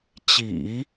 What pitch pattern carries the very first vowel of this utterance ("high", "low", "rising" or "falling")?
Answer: low